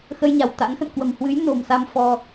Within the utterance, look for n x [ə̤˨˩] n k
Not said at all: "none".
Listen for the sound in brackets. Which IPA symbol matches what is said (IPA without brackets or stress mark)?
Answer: ə̰˧˨